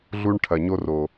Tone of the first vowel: high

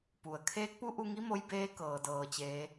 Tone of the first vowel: low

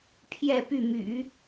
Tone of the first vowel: falling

